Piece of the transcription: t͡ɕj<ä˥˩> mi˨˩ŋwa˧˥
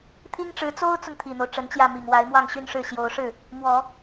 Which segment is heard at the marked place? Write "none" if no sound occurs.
ä˥˩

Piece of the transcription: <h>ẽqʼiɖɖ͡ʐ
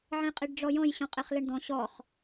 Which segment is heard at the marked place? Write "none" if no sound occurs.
ʕ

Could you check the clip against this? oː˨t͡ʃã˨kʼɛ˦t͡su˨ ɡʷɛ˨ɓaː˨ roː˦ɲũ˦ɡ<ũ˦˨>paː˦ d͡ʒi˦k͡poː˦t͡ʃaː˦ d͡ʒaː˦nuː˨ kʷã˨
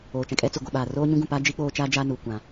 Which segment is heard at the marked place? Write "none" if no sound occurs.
ũ˦˨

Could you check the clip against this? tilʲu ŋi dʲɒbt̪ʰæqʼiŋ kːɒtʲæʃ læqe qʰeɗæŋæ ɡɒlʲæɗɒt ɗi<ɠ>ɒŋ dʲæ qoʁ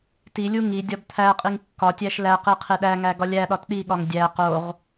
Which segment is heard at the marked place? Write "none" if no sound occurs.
ɠ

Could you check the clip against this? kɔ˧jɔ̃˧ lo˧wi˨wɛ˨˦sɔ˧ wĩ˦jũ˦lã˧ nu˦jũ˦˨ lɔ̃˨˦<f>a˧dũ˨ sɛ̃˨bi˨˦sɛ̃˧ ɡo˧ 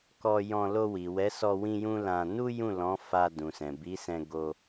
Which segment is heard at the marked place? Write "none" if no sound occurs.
f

